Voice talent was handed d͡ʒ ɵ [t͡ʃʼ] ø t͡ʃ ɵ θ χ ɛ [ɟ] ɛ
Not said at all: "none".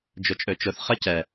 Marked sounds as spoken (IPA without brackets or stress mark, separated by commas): t͡ʃʼ, c